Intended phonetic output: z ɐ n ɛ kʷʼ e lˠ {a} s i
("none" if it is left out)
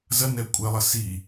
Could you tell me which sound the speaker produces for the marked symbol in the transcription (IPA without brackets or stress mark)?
ɐ